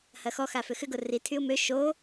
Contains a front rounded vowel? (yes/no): yes